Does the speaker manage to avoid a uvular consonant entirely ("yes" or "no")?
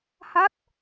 yes